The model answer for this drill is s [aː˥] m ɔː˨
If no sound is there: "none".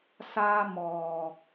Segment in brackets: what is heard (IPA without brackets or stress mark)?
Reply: aː˥